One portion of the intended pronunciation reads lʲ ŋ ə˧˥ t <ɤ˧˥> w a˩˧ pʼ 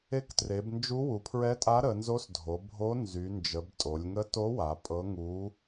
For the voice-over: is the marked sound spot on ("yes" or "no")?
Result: no